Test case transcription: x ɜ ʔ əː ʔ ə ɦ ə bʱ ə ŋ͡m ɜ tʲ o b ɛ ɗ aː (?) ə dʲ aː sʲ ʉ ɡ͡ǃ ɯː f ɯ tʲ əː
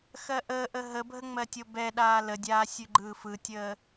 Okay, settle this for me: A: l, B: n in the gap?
A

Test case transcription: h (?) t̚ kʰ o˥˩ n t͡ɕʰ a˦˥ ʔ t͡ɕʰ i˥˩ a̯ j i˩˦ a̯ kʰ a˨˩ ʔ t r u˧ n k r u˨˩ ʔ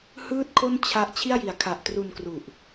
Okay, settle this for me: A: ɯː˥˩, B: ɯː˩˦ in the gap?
A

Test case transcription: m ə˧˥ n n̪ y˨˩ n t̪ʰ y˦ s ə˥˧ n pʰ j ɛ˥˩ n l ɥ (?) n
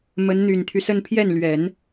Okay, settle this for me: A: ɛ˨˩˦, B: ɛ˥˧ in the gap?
A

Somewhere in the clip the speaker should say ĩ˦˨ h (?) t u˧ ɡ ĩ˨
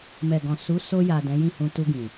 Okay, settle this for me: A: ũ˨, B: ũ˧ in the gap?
B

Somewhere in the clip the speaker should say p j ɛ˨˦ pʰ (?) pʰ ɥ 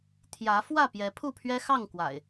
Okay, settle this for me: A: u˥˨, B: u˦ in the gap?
A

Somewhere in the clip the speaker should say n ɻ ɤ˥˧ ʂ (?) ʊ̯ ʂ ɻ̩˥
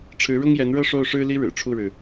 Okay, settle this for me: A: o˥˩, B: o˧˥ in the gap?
A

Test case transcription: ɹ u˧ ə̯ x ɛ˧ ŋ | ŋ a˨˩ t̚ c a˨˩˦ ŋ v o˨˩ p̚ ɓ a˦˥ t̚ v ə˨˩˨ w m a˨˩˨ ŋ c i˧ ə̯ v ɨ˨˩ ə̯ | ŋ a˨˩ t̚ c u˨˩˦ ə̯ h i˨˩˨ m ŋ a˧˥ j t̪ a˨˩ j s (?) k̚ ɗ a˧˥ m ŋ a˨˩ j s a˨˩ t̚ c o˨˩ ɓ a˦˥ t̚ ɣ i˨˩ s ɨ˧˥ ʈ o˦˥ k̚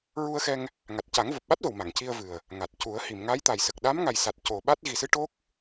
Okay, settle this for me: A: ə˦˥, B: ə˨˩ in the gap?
B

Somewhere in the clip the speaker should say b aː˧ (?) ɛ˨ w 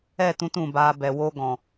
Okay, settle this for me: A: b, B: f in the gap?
A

